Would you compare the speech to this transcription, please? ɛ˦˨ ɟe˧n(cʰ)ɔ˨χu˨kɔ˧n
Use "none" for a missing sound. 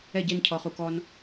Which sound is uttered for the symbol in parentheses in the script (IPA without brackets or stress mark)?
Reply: cʰ